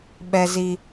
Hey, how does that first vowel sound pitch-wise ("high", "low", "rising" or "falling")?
high